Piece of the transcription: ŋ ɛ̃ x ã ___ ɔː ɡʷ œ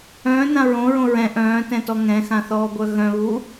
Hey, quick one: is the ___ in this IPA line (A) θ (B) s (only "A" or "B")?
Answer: A